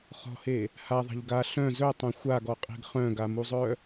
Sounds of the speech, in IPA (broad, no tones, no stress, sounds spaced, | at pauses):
χ ɔ̤ h e | h a ðˤ a̤ ʎ ɡ a ɬ œ̃ z œ tˤ œ̃ xʷ a ɡ ɔ qʼ e̤ ɡ χ œ̃ ɡ a m u zˤ œ